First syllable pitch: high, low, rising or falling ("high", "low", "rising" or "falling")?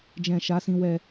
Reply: low